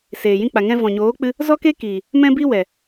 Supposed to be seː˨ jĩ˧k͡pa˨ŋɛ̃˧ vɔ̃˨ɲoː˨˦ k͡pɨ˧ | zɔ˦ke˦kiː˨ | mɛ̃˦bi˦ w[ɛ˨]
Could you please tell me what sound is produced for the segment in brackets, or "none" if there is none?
ɛ˨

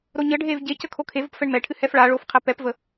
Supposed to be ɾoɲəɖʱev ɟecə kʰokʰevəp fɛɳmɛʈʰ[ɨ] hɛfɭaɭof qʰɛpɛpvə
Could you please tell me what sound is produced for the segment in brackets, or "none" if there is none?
ɨ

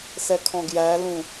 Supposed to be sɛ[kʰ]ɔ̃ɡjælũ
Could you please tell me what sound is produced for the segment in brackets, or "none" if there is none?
kʰ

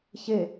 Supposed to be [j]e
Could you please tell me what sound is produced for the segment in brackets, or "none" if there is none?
ç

